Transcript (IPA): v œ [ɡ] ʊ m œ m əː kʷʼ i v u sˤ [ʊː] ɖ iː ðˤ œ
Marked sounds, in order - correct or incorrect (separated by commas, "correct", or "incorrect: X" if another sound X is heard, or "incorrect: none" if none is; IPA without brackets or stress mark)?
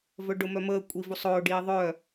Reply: incorrect: ɖ, correct